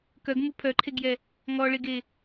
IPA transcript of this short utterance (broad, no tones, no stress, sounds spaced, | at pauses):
k œ ɡ m u pʰ œ ǃʰ e ɡ j ɛ | ŋ ɔ ɭ e ɡ e